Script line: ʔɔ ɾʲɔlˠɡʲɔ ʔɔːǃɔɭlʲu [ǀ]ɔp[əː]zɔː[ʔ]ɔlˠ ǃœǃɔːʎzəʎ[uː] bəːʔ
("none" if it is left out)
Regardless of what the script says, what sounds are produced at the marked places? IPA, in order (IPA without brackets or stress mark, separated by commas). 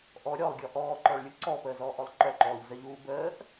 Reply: ǀ, əː, ʔ, uː